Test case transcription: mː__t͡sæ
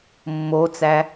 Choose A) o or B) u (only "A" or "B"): A